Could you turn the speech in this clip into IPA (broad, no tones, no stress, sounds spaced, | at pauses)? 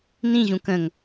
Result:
n ĩ ʑ ũ k ə̃ ŋ